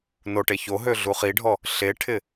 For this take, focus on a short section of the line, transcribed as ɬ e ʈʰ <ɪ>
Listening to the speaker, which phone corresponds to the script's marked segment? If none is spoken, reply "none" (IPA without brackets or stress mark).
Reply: ɪ